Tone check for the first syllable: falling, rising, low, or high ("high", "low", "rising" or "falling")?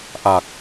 low